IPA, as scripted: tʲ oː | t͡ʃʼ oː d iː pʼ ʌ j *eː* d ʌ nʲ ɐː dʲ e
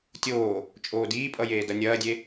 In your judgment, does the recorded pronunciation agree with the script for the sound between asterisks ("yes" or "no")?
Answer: yes